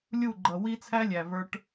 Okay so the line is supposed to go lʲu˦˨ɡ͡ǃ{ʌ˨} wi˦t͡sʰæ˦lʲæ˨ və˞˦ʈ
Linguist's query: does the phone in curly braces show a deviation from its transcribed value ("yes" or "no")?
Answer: no